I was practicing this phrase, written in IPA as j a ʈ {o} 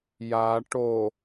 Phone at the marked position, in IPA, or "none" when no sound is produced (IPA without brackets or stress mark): o